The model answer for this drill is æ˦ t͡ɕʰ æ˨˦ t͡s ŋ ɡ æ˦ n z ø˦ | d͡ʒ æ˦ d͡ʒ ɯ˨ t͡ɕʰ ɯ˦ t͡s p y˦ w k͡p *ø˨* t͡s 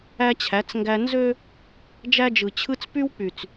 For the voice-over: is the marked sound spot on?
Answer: no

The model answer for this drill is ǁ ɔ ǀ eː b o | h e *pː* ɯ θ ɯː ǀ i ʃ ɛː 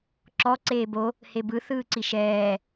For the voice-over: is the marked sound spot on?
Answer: no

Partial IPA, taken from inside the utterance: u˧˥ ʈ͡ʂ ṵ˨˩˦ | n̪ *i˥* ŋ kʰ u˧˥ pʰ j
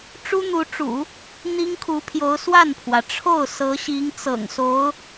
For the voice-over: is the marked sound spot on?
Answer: yes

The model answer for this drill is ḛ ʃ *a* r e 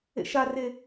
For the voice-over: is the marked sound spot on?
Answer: yes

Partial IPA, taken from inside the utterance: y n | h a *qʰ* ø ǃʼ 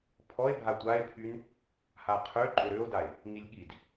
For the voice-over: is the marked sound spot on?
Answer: yes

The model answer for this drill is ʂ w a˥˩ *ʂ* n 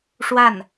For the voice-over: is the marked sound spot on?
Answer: no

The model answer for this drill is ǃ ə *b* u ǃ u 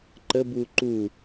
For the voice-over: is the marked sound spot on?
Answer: yes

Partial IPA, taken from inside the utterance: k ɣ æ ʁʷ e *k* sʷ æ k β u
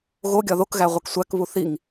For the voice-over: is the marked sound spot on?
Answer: yes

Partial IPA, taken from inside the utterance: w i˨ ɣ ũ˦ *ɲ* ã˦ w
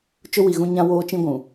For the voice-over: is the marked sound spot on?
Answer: yes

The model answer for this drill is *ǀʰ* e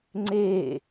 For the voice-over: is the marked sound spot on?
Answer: no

